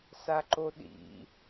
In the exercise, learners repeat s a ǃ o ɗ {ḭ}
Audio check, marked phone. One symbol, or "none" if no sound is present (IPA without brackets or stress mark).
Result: ḭ